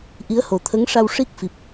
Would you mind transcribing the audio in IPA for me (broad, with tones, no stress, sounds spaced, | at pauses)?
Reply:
ʔ i˧˥ ə̯ h o˨˩˦ t̪ʰ ə˧˥ ŋ ʂ a˧ w ʂ i˦˥ k̚ f i˨˩ p̚